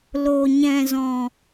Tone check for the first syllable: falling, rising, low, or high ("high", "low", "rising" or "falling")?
low